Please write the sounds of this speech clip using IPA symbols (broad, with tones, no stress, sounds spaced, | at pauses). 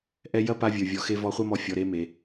ʔ ɛ˧ j ɐ˥ p a˧ vʲ ə˞˩ vʲ ɔ˩ x e˧ v ɔ˧ χʷ ɐ˥ m ɔ˧ fʲ ɔ˩ ɾ e˧ m e˩